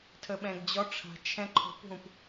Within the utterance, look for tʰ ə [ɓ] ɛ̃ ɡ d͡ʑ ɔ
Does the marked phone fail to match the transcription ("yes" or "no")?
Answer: no